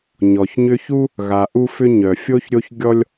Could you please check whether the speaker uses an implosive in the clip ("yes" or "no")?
no